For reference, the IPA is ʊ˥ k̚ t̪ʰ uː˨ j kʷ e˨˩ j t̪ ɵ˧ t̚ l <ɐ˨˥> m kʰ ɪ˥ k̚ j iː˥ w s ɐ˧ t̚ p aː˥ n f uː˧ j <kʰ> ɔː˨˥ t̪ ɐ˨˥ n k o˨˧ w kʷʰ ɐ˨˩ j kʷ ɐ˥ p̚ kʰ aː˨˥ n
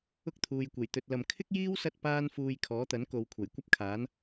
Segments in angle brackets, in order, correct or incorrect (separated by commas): incorrect, correct